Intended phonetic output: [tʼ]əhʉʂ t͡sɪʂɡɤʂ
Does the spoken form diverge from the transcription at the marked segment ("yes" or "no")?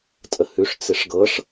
no